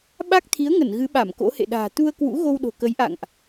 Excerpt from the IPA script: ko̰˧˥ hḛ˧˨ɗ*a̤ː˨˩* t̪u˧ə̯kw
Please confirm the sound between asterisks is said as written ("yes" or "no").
yes